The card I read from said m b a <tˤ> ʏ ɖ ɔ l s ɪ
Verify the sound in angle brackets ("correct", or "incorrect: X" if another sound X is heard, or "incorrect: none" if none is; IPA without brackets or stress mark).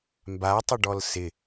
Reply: correct